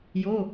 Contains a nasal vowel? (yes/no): no